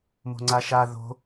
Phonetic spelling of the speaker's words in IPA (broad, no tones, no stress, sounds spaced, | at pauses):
m o̤ ŋ͡ǀ a ʃ a ð o̤